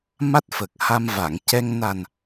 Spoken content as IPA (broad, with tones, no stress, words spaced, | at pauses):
ma˦˥t̚fə˨˩k̚ha˧m va˨˩˨ŋcɛ˧ŋ na˨˩n